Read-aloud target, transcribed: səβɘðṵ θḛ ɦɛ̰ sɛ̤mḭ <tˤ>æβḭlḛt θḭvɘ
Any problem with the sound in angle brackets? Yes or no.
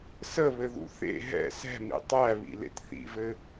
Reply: no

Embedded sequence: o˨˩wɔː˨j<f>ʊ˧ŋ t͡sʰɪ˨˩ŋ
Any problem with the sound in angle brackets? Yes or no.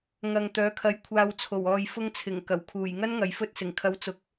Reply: no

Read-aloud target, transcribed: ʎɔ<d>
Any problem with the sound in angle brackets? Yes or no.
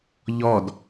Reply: no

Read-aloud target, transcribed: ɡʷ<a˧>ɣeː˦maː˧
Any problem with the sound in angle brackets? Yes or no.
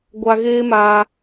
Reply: no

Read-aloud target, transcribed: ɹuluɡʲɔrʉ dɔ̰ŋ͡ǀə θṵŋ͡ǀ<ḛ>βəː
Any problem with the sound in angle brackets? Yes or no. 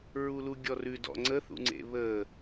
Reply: no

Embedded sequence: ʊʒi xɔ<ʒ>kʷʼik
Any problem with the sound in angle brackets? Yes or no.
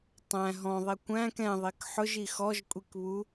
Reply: no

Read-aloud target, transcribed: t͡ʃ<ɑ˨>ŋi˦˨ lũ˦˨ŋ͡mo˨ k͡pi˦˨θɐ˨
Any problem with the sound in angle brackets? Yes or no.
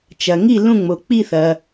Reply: yes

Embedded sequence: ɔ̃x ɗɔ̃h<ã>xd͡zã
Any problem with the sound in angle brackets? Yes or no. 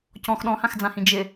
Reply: no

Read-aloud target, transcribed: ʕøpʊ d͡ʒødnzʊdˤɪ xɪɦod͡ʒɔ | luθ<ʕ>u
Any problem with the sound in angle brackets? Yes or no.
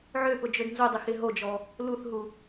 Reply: yes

